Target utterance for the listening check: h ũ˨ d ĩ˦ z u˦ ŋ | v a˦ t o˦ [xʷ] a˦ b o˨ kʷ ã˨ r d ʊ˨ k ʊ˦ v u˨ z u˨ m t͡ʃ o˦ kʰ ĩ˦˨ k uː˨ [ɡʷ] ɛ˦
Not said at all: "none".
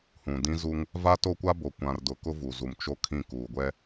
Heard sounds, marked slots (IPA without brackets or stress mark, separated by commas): kʷ, ɡʷ